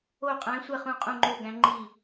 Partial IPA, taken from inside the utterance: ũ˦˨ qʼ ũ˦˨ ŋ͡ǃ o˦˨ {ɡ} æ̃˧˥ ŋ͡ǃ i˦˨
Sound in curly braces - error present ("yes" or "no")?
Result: no